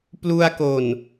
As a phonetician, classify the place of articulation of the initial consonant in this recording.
labial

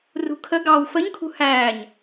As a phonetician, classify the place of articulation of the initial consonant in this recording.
alveolar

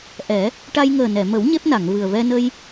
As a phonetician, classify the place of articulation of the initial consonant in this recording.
glottal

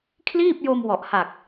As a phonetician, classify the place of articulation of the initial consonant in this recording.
velar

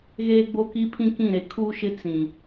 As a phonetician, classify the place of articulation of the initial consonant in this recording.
velar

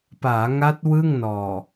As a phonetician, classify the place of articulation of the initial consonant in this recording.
labial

